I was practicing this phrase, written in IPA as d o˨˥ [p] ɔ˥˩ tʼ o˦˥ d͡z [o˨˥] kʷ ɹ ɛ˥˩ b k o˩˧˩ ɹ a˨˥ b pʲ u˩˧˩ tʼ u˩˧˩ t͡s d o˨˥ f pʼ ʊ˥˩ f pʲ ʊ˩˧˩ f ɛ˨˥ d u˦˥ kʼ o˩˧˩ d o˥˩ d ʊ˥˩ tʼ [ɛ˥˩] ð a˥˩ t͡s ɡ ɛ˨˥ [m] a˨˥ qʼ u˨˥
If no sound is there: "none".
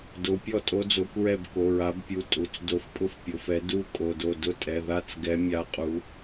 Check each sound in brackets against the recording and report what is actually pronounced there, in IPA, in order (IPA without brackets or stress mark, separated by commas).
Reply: pʲ, o˨˥, ɛ˩˧˩, mʲ